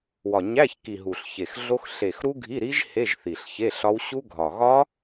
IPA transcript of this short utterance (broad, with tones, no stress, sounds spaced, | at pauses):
w ɒ˨˩ ɲ æ˧˥˧ ç k i˨˩ ɦ u˨˩ ɬ ç e˨˩ x ɮ o˦˥ x ɬ e˨˩ x ɾ u˦˥ ɡʱ i˧˥˧ ɾ i˦˥ ʒ h e˧˥˧ ʒ θ i˨˩ ɬ ç e˧˥˧ ɬ ɒ˦˥ w ɕ u˦˥ ɡʱ ɒ˨˩ ɣ ɒ˦˥